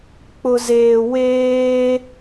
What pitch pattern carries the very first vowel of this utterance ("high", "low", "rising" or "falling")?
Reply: low